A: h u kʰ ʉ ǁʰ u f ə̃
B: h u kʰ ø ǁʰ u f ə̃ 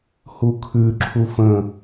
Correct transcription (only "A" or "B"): A